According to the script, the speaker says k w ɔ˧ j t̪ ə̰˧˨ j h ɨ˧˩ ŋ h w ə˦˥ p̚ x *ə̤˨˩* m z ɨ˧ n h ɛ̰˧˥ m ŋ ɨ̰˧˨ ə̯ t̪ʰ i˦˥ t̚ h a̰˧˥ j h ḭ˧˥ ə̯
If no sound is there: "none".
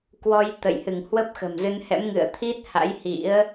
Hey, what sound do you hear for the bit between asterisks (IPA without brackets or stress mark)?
ə̤˨˩